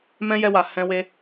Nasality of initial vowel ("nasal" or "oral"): nasal